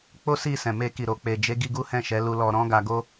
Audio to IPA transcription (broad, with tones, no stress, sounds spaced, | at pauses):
k͡p o˦ s i˦˨ s ɛ̃˨ m e˧ k i˨ ɾ o˨ k͡p e˨ d͡ʒ e˨˦ ɡ i˧ ɡ u˦ h ɛ̃˦˨ ʃ ɛ˨˦ l u˧ l ɔ˧ ɾ ɔ̃˦ ɡ a˧ ɡ o˦